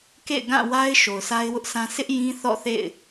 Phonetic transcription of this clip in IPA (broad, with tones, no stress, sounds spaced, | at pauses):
k ḛ˦˨ ɪ̯ ɡ ã˦˨ w a˦ ɪ̯ ʃ o˨ ʊ̯ sʰ a˦ ɪ̯ w ʊ˦ ʔ s ã˦ s ɪ˦ ʔ j ĩ˦ θ ɔ̰˦˨ θ ḛ˦˨ ɪ̯